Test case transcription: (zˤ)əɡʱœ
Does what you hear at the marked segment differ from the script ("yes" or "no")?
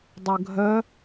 yes